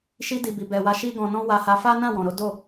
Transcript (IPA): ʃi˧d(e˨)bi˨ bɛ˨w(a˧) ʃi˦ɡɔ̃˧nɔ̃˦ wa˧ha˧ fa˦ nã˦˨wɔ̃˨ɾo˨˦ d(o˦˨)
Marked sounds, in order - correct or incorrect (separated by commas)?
incorrect, incorrect, correct